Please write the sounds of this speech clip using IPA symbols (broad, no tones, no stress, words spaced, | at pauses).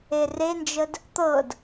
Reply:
erend͡ʒəd | t̪ɤd